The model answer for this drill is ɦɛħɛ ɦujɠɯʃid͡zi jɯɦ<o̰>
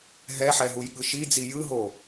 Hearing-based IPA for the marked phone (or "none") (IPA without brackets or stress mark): o